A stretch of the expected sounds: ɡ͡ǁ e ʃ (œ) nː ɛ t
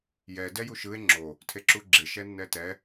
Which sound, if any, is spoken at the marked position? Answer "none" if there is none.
ɛ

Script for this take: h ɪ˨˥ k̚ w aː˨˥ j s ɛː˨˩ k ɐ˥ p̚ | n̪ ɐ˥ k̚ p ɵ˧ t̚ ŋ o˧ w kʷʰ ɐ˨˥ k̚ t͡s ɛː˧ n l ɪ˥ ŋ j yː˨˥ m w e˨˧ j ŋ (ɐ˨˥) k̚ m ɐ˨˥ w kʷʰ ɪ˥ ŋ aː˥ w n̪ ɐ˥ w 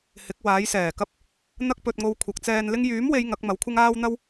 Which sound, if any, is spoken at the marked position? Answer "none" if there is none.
ɐ˨˥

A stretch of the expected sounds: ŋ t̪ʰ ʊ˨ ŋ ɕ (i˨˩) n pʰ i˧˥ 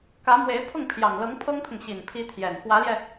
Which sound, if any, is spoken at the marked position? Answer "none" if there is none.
i˨˩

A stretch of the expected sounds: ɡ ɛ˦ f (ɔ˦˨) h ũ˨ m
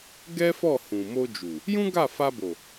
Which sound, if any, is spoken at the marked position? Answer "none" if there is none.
ɔ˦˨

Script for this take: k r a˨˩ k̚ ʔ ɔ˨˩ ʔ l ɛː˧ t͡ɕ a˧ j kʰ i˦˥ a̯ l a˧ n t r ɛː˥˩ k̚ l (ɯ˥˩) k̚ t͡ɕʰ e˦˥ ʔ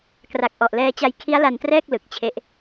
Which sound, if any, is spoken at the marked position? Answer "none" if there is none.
ɯ˨˩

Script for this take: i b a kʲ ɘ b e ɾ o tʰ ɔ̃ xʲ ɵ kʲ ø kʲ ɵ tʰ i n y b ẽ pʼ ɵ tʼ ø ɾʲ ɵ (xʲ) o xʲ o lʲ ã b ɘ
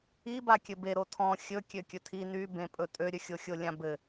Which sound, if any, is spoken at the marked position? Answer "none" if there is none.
xʲ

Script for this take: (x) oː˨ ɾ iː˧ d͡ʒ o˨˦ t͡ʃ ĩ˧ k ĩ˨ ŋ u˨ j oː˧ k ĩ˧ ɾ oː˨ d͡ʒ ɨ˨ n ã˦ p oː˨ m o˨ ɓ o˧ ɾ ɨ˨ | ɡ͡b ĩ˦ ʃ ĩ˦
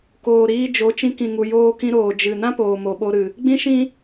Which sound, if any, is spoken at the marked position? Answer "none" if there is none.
k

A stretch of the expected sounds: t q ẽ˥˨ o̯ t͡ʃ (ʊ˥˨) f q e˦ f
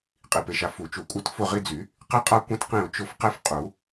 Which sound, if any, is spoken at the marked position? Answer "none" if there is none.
ʊ˥˨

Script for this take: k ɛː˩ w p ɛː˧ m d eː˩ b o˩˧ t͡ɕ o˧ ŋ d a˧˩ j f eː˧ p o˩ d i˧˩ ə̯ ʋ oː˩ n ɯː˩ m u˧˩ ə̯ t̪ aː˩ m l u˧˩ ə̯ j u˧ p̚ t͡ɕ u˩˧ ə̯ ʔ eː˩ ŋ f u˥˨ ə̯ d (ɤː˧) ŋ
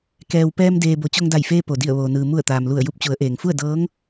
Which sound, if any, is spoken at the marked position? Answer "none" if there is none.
ɤː˧˥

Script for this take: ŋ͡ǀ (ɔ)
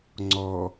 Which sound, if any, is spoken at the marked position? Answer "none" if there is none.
ɔ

